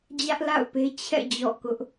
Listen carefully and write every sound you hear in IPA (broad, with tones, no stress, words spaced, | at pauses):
d͡ʑä˦ʔla̰˦˨ʊ̯pe˦ t͡ɕʰɛ̰˦˨ d͡ʑɔ̰˦˨kʊ˦ʔ